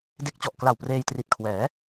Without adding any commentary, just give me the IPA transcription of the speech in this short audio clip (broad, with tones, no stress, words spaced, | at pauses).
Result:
de˦˥k̚t͡ɕɔ˨˩ʔ kla˨˩w preː˧jtri˨˩t̚kʰwɛː˩˦